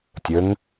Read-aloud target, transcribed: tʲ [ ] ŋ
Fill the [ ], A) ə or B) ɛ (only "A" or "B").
A